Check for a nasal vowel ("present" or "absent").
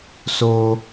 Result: absent